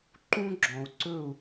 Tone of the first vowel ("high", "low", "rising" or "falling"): high